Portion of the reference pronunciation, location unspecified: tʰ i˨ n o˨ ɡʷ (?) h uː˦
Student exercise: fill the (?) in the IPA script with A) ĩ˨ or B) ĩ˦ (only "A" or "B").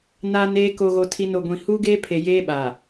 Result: A